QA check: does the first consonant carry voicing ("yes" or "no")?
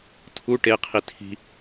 no